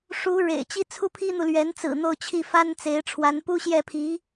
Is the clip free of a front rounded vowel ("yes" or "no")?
yes